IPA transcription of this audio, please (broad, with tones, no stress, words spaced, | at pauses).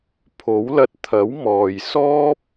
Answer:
pʰo˨˥wlɐ˧t̚ t̪ʰɐ˨˥wmɔː˨jsɔː˥p̚